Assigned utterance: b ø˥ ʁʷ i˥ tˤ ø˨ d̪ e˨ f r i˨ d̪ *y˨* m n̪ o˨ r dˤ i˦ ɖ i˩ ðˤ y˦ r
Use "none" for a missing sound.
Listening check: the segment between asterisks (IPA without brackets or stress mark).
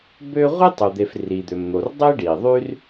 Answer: ø˨